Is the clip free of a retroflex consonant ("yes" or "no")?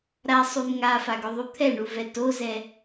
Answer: no